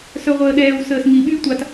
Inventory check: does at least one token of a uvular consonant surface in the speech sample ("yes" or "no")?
yes